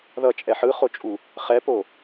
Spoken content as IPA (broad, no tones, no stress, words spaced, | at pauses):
ðʌt͡ʃʼɛ ħɯχot͡ʃʼu | χɛpo